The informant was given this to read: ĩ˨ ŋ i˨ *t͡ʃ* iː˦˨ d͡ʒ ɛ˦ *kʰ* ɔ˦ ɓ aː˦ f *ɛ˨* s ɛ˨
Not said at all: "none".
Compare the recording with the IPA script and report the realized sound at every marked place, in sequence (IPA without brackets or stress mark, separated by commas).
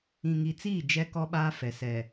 t͡s, k, ɛ˨